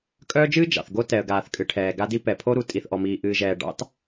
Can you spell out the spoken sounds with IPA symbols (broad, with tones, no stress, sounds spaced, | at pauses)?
kʼ œː˦ d͡ʒ ɨː˦ d͡ʒ ɑ̰˨ θ ɡ o˦ t ɛ˨ ə̯ ɡ aː˨ θ kʼ ɨ˨ ʈʰ ɛː˨ ɡ a˦ d i˦ p ɛ˨ pʰ o˦ ɾ u˨ tʼ i˨ θ ʔ ɔ˨ m iː˨ ʔ ɨː˨ ʒ ɛː˨ ɖ ɑ̰˦ t